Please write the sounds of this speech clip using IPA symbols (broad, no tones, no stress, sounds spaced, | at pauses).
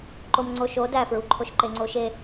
ǃ o m ŋ͡ǀ o ʃ o d æ f ɹ u ǃʰ o ʃ ǃ e ŋ͡ǀ o ʃ e